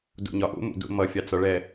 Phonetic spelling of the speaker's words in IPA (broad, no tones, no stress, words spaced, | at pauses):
dṵɲɒʔṵ mṵdṵmʌ fʲɑt͡sɒɭɛ